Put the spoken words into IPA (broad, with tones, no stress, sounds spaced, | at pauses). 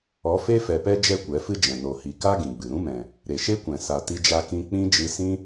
ɔ˨˦ f e˦ f ɛ˨ p ɛ˦ d͡ʒ ɛ˦ kʷ ɛ˨˦ f ɨ˦ d͡ʒ ɛ̃˨ n o˨ h i˨ k a˦ ɡ ĩ˨ ɡ͡b ɨ˨ ɾ ũ˦ m ɛ̃˨ | ɾ e˨ ʃ e˦ kʷ ɛ̃˨ s a˨ t i˧ d͡ʒ a˧ k ĩ˧ k͡p ĩ˦ d͡ʒ ɨ˧ s ĩ˦